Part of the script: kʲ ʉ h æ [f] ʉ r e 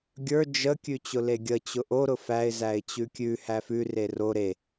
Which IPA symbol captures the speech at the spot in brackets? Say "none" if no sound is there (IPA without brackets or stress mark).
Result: f